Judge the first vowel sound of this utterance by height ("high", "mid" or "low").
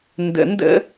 mid